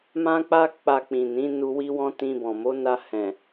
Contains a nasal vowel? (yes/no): yes